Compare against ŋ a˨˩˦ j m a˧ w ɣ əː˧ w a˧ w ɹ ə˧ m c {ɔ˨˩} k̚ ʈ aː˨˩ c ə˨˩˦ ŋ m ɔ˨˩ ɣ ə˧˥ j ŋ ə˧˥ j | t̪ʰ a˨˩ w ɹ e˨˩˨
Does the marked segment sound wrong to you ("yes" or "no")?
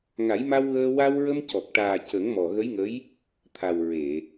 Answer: no